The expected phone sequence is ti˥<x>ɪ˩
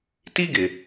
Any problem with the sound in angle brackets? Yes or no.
yes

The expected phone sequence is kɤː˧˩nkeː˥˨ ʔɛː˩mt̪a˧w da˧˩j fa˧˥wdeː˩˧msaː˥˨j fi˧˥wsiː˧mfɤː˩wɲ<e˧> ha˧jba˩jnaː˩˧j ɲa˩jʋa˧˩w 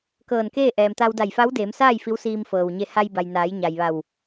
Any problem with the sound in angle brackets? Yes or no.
no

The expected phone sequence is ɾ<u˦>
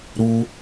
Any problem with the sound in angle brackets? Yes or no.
no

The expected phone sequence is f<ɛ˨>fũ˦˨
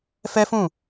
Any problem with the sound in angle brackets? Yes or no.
yes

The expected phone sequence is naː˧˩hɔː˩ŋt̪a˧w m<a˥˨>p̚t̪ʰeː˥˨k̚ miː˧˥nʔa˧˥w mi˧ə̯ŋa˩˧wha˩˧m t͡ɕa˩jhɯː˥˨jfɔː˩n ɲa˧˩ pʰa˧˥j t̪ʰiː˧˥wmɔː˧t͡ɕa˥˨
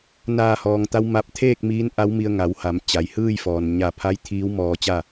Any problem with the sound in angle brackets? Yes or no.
yes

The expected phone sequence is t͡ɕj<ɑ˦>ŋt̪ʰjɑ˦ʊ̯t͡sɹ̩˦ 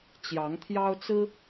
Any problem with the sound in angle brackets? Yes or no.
yes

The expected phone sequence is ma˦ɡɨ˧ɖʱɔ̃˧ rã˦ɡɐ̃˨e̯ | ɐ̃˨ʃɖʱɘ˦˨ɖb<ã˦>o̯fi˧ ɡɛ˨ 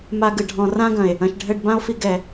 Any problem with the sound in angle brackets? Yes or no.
no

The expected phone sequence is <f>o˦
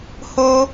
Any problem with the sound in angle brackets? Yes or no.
yes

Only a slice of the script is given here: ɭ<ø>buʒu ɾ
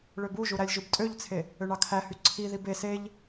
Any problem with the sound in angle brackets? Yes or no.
no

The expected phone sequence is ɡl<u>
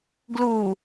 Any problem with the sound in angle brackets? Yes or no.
no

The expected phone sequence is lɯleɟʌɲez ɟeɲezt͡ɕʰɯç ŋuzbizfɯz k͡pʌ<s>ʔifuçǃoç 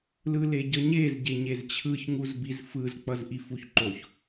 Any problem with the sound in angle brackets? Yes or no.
yes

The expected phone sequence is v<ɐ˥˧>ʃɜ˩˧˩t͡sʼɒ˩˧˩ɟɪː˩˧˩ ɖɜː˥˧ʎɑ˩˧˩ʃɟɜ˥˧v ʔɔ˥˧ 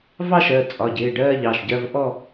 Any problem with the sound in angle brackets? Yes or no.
yes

